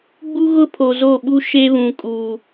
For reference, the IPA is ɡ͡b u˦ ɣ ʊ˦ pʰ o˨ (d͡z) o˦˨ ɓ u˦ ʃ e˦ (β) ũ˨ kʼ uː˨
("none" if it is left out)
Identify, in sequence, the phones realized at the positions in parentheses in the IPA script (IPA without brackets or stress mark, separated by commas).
z, β